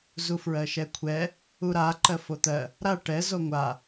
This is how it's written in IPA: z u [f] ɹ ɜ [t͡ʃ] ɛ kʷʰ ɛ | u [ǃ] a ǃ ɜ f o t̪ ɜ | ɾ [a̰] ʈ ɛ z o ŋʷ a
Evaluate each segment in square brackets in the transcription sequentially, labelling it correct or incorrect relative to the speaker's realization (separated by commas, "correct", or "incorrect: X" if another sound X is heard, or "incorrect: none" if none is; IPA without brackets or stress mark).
correct, incorrect: ʃ, incorrect: ɾ, incorrect: a